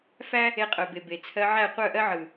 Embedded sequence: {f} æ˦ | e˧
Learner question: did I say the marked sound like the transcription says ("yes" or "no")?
yes